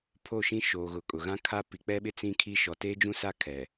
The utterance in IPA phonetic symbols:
pʰ o˦˨ ʃ ĩ˦ ʃ oː˨ ɣ ʊ˨ kʼ ʊ˨ ɣ ã˦ kʰ a˦ p i˨ k͡p ɛ˦ ɓ ɪ˦ t͡s ĩ˦ kʰ i˦ ʃ ɔ˨ t eː˦ d͡ʒ ũ˦ s a˦ kʰ ɛ˨

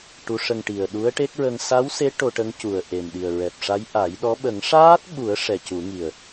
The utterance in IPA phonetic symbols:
ʈ u˧˥ ʂ ə˧ ŋ ʈ i˨˩ ə̯ ɗ u˧˥ ə̯ ʈ e˦˥ k̚ ɹ ə˧ ŋ s a˧˥ w s e˧˥ ʈ o˧ ʈ ə˧˥ ŋ c u˨˩ ə̯ ʔ e˨˩ m ɗ i˨˩ ə̯ ɹ ɛ˨˩ p̚ ʂ a˧˥ j ʔ a˨˩˦ j ɗ ɔ˧˥ ɓ ə˨˩˦ ŋ ʂ aː˦˥ t̚ ɓ u˨˩˦ ə̯ ʂ ɛ˨˩ c u˨˩˦ ŋ i˨˩ ə̯

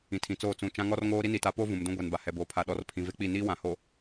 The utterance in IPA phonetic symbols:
ĩ˨ tʰ ĩ˨ t͡s oː˦˨ t͡s ũ˨ t͡ʃ ã˦ ŋ ɔ˦ r ŋ oː˦ ɾ i˦ n i˨ t a˨˦ p oː˦ v ũ˨ m d ũ˦ ɡʷ ɛ˨ n b a˨ h ɛ˨ b oː˨ pʰ a˨ ɗ ɔ˨˦ r pʰ ĩ˨ v e˦ k͡p i˦˨ n iː˦ w ã˨ h o˨

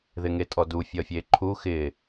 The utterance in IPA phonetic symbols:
ð ɪ ŋ e tʼ ɔ d u fʲ ʌ fʲ e ǃʰ u x ɪ

